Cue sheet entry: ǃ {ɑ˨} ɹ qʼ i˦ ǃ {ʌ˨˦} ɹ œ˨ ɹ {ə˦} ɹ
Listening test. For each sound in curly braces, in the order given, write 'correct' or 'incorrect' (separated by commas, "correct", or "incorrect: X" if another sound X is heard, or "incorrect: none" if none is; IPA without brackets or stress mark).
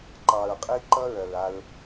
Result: correct, incorrect: ʌ˦, incorrect: a˦